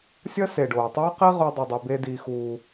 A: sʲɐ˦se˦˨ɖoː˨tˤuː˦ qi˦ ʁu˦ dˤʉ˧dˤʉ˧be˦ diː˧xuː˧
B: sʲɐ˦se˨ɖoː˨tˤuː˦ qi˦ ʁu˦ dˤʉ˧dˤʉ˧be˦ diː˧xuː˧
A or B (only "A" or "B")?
B